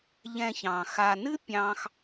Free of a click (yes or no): yes